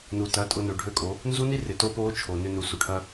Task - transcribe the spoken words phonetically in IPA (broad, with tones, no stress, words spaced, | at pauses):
nu˨tɐ˨˦tʼʊ˧ nø˨ɖʱø˦˨kʼo˨˦ | nzu˦ni˦rɪ˨ to˦po˦t͡ʃʰo˨ nʏ˧nu˨ su˨ʈʰɐ˦